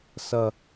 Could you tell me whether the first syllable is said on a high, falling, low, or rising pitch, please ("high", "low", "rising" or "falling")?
low